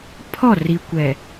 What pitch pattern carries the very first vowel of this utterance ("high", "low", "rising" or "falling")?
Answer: falling